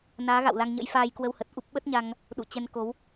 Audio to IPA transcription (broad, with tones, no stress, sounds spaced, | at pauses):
n aː˨˦ ɣ a̰˧˨ w l a˧ ŋ ɲ ə̰˧˥ j f aː˧ j k w ə˧ w h ə˨˩ t̚ ʔ u˦˥ p̚ ɓ ə˦˥ t̚ ɲ a˧ ŋ | ɗ ṵ˧˨ t͡ɕ ɛ˧ n k o˨˦ w